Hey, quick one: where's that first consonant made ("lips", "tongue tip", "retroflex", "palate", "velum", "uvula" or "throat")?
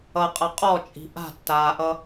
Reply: uvula